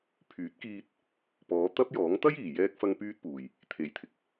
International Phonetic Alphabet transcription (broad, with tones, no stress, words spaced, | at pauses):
pʰyː˨˥t̚kiː˧t̚ | pɔː˨˧t̪ɐ˥p̚jɔː˨˥ŋ t̪ɐ˥jiː˨˩jɛː˧k̚fɐ˧ŋ pyː˥t̚puː˨j | t̪ʰe˨˩jt̪ʰɪ˨k̚